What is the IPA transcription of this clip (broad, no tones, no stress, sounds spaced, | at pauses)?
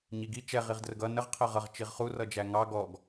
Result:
ɲ i ɡ i t͡ʃ ɛ ʁ i ʁ d r ə ɡ ʌ n ə ʁ qʰ ɜ ʁ ʌ ʁ t͡ʃ i ʁ χ u r ʌ d͡ʒ æ ŋ ɑ ɡ ɔ ɡ